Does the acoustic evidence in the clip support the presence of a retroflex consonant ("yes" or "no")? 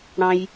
yes